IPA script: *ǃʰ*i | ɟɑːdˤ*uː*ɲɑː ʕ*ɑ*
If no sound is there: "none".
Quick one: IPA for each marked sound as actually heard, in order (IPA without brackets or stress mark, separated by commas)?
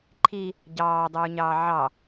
ǃʰ, uː, ɑ